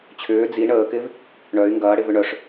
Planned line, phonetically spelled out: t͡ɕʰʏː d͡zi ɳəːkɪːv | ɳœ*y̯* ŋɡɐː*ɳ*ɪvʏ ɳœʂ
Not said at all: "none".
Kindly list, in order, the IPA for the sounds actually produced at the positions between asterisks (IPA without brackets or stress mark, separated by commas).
y̯, ɽ